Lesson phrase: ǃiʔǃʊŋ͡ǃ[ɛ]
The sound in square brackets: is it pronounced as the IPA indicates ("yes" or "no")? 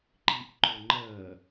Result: no